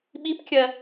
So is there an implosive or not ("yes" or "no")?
yes